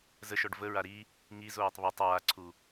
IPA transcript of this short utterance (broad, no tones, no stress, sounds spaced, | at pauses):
z ə ʃ ɔ ɖ v ə ɹ a ɾ i | ŋ i z oː tˤ β o tˤ aː ǀʰ u